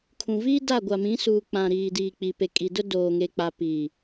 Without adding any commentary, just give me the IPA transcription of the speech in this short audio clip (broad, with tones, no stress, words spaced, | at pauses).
kʰũ˨viː˦da˦˨ ɡʷa˨mĩ˨˦suː˨ k͡pã˨ɾiː˨ diː˨k͡pi˨pe˨ kʼi˨dʊ˦ doː˨ŋe˨k͡pa˨ pi˨